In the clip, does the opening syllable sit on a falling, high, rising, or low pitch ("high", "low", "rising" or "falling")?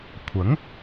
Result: rising